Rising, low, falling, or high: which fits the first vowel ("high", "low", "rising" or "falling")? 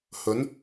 rising